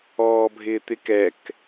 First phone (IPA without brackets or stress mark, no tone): ɔː